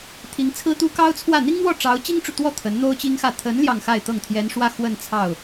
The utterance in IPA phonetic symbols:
t̪ʰ i˧˥ ŋ t͡sʰ ɹ̩˥ t̪ u˥ k ɑ˥ ʊ̯ t͡sʰ w ä˥˩ n̪ i˥ ŋ n̪ w ɔ˥˩ ʈ͡ʂ ɑ˧˥ ʊ̯ t͡ɕ i˥ ŋ ʈ͡ʂ u˨ t̪ w ɔ˥˩ t̪ʰ ə˧˥ n n̪ o˥ ʊ̯ t͡ɕ i˥ ŋ x ä˥˩ t̪ʰ ə˧˥ n l j ɑ˥˧ ŋ x a˥˧ ɪ̯ t̪ ɤ˥˩ ŋ t̪ʰ j ɛ˧˥ n ʂ w ä˥˧ x w ə˥˧ n t͡sʰ ɑ˥˩ ʊ̯

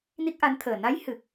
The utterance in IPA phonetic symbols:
n i˦˥ k̚ ʔ a˧˥ n t̪ʰ əː˨˩ n a˧˥ j h ɨ˨˩ k̚

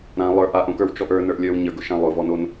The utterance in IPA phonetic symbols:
ɾ ã lˠ ə˞ ʔ a ʔ õ k ə˞ w t͡ʃ ɔ ʔ ə˞ n ə˞ ʔ lʲ ə˞ w ɲ ə˞ ɡ ʊ ʃ ã lˠ ʊ v ɔ n o n

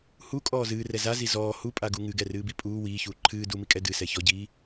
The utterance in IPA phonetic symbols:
h u kʼ ɔː z ɨː r ɛ z a z i z ɔː h u pʼ a ɡ u ŋ ɨ ɡ ɛ r ɨː b i pʼ uː w iː ç uː ǃʰ ɨː d u m i kʼ ɛ d ɨ s ɛ ç ɔ ɟ iː

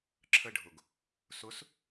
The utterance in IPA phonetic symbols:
ǁʰ ə ɖʱ ʊ ɡ | s ʊ s

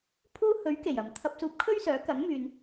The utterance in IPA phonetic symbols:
pʰ uː˥ h ɵ˨˥ ɥ k e˨˩ j ɐ˨˩ m t̪ʰ ɐ˧ p̚ s uː˧ p̚ kʰ ɵ˥ ɥ s œː˨˥ k ɐ˨˥ ŋ m yː˨ n

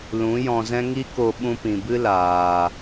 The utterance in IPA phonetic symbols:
l ũ˨˦ j ɔ̃˧ z ɛ̃˦ ŋ i˦ k o˧ ɓ ũ˧ p ĩ˨ b ɨ˦ l aː˨

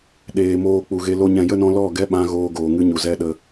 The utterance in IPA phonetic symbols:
ɗ eː˨ m oː˧ k͡p u˨ ɣ e˧ l o˦ ɲ ɛ̃˨ j ə˦ n ɔ̃˧ l ɔ˦˨ ɡ ɛ˦ ɓ ã˧ ɣ oː˧ ɡ oː˨ ŋ ɨ˧ ɲ u˨ z ɛ˧ ɗ ə˧

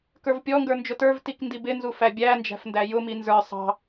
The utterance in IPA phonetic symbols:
k ə˞ v pʲ ɔ ŋ ɡ ə˞ n d͡ʒ ʊ t ə˞ v t i k n d i b ɪ n z u f æ bʲ æ n d͡ʒ æ̤ f n d æ j ʊ m i n z ə˞ sˤ ɑ̤

